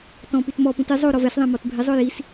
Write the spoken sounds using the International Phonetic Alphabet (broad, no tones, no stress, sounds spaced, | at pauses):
t ɔ̃ p y t m ɔ p ũ t ɪ zˤ o ɾ ɔ v ɛ s ðˤ ɛ̃ m ɔ t bʱ ɪ zˤ ʊ j i s